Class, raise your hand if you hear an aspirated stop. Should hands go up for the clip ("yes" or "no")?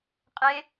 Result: no